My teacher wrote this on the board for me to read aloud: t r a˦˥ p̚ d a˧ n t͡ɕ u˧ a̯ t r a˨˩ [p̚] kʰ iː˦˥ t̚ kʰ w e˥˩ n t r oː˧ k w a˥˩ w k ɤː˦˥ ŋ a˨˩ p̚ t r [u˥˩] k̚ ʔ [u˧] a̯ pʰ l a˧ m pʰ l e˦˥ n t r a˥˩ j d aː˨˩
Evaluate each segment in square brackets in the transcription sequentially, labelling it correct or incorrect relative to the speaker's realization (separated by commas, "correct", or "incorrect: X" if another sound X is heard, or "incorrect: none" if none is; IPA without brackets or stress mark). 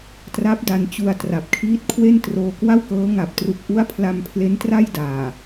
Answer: correct, incorrect: u˨˩, incorrect: u˦˥